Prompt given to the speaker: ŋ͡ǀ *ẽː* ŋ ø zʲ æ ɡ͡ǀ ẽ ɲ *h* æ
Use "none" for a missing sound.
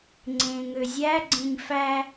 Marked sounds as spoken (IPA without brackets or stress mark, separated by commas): ẽː, f